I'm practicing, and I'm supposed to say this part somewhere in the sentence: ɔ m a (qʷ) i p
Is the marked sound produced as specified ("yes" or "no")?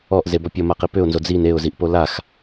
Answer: no